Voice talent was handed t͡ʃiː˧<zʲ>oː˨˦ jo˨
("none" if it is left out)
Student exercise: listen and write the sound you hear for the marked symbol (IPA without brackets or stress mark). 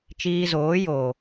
z